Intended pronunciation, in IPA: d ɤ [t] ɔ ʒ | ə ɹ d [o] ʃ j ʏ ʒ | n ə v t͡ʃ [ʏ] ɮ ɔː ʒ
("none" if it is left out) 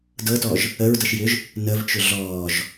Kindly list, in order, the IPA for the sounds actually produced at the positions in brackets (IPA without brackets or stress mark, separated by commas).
t, ɤ, ʏ